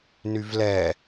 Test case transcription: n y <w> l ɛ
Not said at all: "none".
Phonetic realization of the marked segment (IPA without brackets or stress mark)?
v